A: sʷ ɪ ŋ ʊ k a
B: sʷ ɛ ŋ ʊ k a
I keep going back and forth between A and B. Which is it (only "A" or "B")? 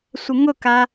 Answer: A